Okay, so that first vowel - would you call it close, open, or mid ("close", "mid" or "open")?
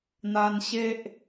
open